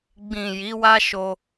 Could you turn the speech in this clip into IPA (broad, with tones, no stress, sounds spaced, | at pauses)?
ɡ͡b ĩ˨ j i˨˦ w a˦ ʃ o˦